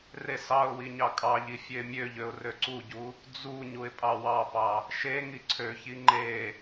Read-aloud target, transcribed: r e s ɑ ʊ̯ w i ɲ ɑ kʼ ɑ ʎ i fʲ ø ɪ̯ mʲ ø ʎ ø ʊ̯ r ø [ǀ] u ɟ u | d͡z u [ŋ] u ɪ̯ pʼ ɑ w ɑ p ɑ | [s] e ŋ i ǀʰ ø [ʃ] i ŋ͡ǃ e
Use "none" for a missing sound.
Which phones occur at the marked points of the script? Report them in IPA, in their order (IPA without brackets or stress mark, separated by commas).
ǀ, ɲ, ʃ, ç